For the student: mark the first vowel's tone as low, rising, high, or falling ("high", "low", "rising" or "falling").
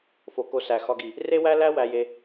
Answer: low